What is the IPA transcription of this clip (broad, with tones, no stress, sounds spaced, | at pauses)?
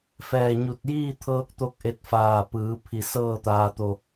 f ɛː˧˩ ɲ u˧˩ t̚ j iː˥˨ t̪ʰ ɤː˧ k̚ t̪ o˧ k̚ ʔ e˧ t̚ f aː˧˩ p ɯː˩˧ pʰ i˧˩ s ɤː˥˨ t̪ aː˧ t̪ o˧